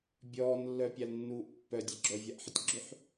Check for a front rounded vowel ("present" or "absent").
present